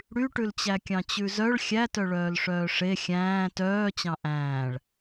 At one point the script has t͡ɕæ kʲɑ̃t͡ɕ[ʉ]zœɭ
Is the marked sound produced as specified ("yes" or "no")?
yes